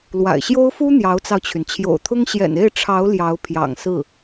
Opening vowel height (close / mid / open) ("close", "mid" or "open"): open